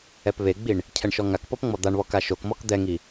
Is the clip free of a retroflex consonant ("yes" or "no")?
no